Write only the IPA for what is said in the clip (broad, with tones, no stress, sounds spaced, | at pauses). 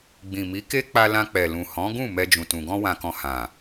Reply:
ɡ͡b ĩ˨ m i˨˦ k e˦ k͡p a˧ l ã˧ k͡p ɛ˨ l ũ˨ h ɔ̃˨˦ ɡ ũ˦˨ m ɛ˧ d͡ʒ ũ˨ t ũ˨ ɡ ɔ̃˧ w ã˨ k ɔ̃˨ h ã˨